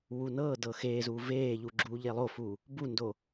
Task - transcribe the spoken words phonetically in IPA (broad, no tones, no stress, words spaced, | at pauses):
wunɤːdɤ xeːzuː veːʎu ɡ͡ǁuːʎelˠofuː | bundo